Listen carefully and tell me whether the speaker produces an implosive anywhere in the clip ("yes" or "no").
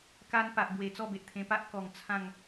no